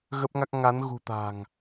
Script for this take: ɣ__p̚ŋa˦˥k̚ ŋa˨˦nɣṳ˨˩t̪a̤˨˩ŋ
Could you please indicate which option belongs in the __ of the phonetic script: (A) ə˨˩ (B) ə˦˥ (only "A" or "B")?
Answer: B